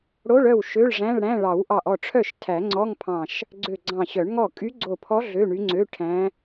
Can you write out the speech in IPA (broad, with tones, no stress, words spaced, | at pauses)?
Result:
ɽo˧˥˧ɭœ˥˩w ʃø˧˥˧ɭʐæ̃˧˥˧ɭɽæ̃˧˥˧ ɭɑ˨˩˦wʔɑ˧˩ʔ ɔ˥˩ʈ͡ʂʰœ˥˩ʃ tʰæ˨˩˦ŋ͡ǀɔ˧˥˧ŋpʰɑ̃˧˩ʃ | ɡ͡ǀø˧˩ɡ͡ǀɑ̃˧˩ɕœ˨˩˦ɳŋɔ˥˩ kʼy˧˥ɡ͡ǀo˧˩pʰɔ˧˥ ɮø˧˥˧ɳy˧˥ŋ͡ǀø˧˥˧ ʈʰæ̃˧˥